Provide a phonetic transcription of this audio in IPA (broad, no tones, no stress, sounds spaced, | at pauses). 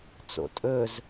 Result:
t͡s o̰ tʼ ɵ z